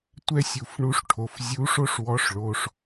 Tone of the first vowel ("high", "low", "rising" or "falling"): high